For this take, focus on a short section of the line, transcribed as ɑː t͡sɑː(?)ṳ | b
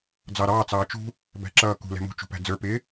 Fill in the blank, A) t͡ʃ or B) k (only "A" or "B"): A